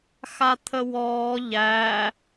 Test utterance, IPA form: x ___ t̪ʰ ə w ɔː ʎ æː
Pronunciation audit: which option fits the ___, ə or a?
a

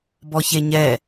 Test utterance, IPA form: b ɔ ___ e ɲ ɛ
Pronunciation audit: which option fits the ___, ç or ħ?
ç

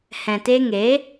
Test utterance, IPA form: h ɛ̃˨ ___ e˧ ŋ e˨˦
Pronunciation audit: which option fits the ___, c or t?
t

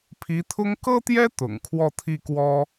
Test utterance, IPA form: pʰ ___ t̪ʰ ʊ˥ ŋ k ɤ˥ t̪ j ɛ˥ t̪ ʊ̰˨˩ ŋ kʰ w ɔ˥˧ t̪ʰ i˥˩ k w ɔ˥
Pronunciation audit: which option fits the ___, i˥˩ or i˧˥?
i˧˥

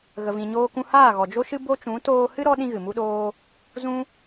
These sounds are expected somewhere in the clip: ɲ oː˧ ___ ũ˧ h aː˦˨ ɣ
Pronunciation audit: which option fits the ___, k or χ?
k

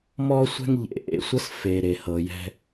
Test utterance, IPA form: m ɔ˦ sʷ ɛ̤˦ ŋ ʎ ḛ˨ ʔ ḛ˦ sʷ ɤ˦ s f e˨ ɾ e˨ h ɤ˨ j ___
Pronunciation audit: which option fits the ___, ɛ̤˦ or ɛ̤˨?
ɛ̤˦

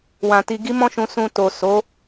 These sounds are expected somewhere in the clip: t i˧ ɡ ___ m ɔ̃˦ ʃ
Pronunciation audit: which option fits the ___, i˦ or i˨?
i˦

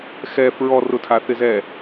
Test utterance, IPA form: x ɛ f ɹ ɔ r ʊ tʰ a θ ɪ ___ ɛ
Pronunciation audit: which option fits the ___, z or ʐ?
z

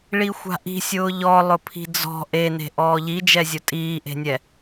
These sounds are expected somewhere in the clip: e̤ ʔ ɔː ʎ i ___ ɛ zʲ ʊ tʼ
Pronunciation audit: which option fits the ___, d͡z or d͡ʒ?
d͡ʒ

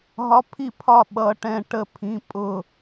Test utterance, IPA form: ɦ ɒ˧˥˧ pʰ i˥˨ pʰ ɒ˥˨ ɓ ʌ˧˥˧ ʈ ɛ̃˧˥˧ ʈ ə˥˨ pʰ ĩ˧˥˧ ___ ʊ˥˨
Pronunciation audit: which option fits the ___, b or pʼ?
pʼ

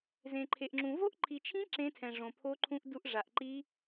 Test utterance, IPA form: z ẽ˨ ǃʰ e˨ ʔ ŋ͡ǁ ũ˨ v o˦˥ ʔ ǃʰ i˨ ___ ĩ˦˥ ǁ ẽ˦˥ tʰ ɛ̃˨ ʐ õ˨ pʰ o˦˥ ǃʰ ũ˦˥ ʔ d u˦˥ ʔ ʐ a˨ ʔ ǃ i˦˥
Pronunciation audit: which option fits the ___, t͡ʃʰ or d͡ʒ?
t͡ʃʰ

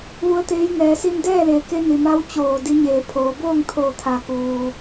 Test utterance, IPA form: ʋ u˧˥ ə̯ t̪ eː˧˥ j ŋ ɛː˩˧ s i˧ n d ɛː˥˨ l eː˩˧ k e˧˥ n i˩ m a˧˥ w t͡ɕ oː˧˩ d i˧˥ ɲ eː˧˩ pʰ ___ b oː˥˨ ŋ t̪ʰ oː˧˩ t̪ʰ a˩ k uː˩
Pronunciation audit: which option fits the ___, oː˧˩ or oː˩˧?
oː˩˧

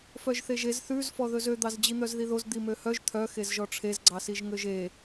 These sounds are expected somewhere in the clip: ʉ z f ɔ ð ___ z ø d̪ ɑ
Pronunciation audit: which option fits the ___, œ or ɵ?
ɵ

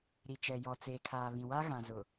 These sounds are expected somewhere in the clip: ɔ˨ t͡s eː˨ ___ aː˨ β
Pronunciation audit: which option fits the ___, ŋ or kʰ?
kʰ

